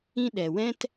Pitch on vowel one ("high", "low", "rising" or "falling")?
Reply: high